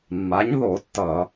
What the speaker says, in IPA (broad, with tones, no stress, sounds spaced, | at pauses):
mː a˩˥ ɲ ð o˧˩˧ tː ʌ˧˩˧